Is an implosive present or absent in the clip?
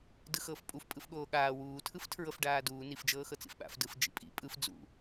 present